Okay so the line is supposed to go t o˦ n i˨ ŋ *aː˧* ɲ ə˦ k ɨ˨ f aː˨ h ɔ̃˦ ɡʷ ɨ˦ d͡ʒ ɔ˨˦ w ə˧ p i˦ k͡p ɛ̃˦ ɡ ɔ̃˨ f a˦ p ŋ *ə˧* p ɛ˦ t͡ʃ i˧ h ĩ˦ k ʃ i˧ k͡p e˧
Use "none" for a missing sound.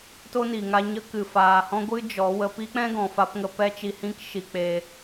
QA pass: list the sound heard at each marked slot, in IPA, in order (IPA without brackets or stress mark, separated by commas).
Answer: a˧, ə˧